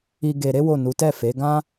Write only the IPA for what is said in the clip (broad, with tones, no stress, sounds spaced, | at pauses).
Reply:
i˧ ɡ e˧ ɾ e˦ w o˦˨ n u˨˦ t ɛ˦˨ f e˨˦ ɡ ã˦